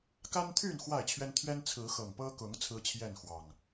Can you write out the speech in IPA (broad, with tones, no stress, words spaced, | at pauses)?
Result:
ka˦nt̪ʰy˥˨n xwa˥˨ɪ̯t͡ɕʰɥɛ˦n t̪ʰɥɛ˦nt͡sʰɹ̩˨˦xɤ˨˩ŋ pɤ˦ kʊ˨˦ŋ t͡sʰɹ̩˦t͡ɕʰjɛ˥˨nxwɑ˨˩ŋ